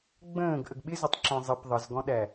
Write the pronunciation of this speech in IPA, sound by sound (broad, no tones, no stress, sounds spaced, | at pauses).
ɡ͡b ə̃ː ɡ ʔ ə ɡ ɓ ɪ z ʊ tˤ ǁ ɛ̃ zˤ ɪ p ðˤ ə z ɡ ɔ̃ ɗ æ